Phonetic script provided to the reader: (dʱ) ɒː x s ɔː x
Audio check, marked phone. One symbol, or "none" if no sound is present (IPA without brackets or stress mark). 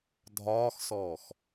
dʱ